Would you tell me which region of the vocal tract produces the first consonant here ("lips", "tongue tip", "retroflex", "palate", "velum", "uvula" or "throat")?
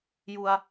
palate